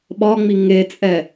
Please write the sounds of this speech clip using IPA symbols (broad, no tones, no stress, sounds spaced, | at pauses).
ɓ ɒ ŋ͡m i ŋ e t͡sʼ ɛ